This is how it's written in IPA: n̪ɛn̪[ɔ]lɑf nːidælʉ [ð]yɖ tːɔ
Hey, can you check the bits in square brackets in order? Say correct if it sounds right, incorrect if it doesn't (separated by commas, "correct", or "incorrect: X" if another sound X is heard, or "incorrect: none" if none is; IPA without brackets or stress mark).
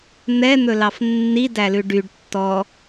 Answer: incorrect: ɵ, incorrect: ɖ